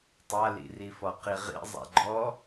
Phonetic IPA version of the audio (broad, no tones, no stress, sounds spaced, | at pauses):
tˤ a l ḭ r i f ɔ q i ʁ ḭ zˤ a̰ ɡ͡ǃ ɔ